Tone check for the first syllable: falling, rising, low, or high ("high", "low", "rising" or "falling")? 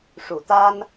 low